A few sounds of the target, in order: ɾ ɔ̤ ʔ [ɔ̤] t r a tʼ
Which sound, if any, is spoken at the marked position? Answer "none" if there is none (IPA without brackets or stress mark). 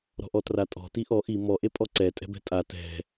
ɔ